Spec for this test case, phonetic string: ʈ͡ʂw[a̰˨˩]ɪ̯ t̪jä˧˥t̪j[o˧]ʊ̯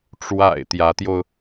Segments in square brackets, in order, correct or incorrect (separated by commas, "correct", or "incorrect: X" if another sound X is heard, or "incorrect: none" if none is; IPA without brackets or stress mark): correct, correct